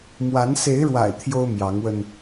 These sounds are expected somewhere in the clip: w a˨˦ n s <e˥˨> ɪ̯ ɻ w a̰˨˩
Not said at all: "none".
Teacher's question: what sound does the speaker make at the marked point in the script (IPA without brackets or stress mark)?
e˨˦